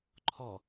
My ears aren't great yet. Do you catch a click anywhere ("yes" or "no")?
yes